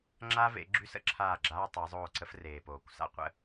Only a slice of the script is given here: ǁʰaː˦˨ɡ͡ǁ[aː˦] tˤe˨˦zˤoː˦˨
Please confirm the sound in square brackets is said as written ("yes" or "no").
yes